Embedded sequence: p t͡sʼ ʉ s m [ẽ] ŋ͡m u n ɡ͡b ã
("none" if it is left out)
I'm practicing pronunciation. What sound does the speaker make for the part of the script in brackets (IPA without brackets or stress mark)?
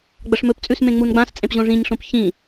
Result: ẽ